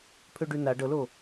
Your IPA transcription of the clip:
pʰ ø ɖ ʉ n a ɖ ɤ l o

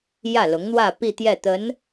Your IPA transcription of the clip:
j ä˥˩ l ʊ˧˥ ŋ n̪ w ä˥˧ p i˥˧ t̪ j ɛ˥˩ t̪ ə˧˥ n

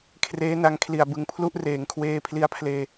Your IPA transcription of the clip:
kʰ r eː˦˥ n a˧ ŋ kʰ l i˨˩ a̯ b ɯ˨˩ ŋ pʰ l u˦˥ ʔ r eː˨˩ ŋ kʰ w eː˧ pʰ l i˧ a̯ pʰ l eː˧

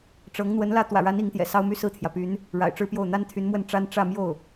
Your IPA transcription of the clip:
ʈ͡ʂ ɤ˧˥ ŋ n̪ w ə˧˥ n l ä˥˩ t̪ w ä̰˨˩ ɻ a˧˥ n i˧˥ ŋ t̪ j ɛ̰˨˩ s ɑ˥ ʊ̯ m y˥˧ s ɹ̩˥˩ t̪ʰ j ä˩ p y˧˥ n | ɻ a̰˨˩ ɪ̯ ʈ͡ʂ ɻ̩˥ p j o˥˩ ʊ̯ n̪ a˥ n t̪ʰ y˧˥ n m w ə˥˩ n ʈ͡ʂ a˥ n ʈ͡ʂ ä˥˧ m j o˥˩ ʊ̯

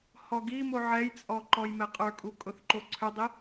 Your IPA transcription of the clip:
h ɔ ɡ i m o ʕ ɛ j t͡sʼ ɔ ǃ ɔ j m ɛ qʼ ə˞ kʼ u kʼ ʊ θ ǃ o ǀʰ ø dˤ i

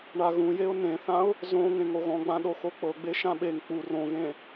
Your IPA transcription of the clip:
ɳ a ɣ ũ j e ʊ̯ n ẽ θ ã ʊ̯ | z õ ŋ ẽ ŋ o ɣ ɔ̃ ɡ͡b ã ɗ o x o k͡p ɤ ɡ͡b e ʃ ã ɓ e ŋ k͡p u r õ ɣ ẽ

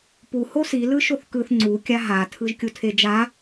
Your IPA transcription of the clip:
p u h o s i l ɯ ʃ o θ k ɯ θ ŋ͡ǀ u kʲ a ɦ a tʰ ɯ ʒ kʲ u tʰ e d͡ʒ a

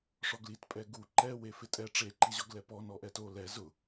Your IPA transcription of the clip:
ʂ ɔ ɡ l i t pʼ ɛ ɡ u ǃ ɛ w e f ɪ tʼ ɛ ʈ͡ʂ e ǃ i ʑ ɔ ɡ l ɛ p ɔ n ɔ ʔ ɛ t o l ɛ z ʊ

